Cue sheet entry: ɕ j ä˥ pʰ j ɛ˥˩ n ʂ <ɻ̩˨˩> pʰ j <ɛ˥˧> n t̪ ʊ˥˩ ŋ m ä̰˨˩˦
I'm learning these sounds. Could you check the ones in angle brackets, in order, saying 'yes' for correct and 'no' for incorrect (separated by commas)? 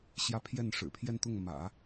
yes, yes